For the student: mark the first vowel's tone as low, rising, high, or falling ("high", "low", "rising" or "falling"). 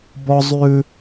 high